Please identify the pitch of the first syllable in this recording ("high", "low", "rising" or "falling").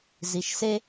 low